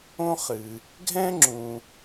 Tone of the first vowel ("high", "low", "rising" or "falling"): high